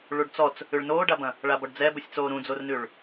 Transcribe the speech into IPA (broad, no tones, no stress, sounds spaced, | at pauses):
ɭ u ɖ t͡s ɔ t͡s | ʉ ɭ n oː ɖ a b ɐ̃ | ɭ a b ɔ ɖ d͡z ɛ b u sʲ t͡s oː ɾ ũ d͡z o r n ʉ ɭ